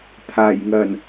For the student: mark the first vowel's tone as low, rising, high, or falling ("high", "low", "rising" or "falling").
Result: low